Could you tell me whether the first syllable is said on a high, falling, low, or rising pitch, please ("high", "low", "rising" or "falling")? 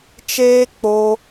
high